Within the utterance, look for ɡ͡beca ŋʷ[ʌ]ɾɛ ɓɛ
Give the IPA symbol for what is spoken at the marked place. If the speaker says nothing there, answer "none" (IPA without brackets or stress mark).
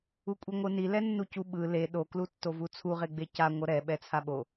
ʌ